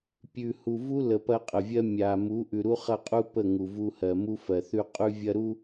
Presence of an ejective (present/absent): present